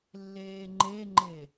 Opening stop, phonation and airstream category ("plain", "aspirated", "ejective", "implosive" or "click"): click